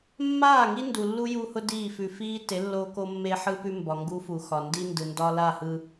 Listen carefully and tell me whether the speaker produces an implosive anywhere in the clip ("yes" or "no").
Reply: no